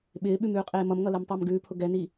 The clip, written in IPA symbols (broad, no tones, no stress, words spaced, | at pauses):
ɓɪːɓʉm ʉːqʼeːmʌmŋʌ lɛmtˤɪːmɡʉːpʰʊ ɡɛni